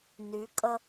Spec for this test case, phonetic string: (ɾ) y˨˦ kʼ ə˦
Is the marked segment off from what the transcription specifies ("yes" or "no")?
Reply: yes